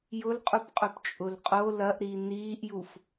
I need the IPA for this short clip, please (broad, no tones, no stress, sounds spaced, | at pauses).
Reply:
j ʊ l qʼ u p qʼ ɵ p t͡ʃʼ ʊ l qʼ o l ɐ ʔ ɾ i n iː ʔ j u f